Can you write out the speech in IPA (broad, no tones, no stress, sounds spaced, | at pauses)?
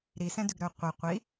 ɾ i s ɛ̃ d ʉ ɡ ɾ œ qʷ i qʷ i